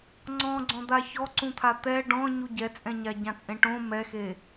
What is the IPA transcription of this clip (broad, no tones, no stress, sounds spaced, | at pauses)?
ŋ͡ǀ ɔ̃ ɡ͡ǀ ɔ̃ d̪ a ç ɔ ǀ ũ t̪ʰ a t̪ ɛ ɖ ɔ̃ ɲ u ɟ ɛ t͡sʼ ɛ̃ ɲ a ɟ ã t͡sʼ ẽ ʈ õ m ɛ x e